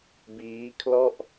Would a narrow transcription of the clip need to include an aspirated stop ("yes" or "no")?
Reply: yes